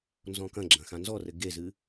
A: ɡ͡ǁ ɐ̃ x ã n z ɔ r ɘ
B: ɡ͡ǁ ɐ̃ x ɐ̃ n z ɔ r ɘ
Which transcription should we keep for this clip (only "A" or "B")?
A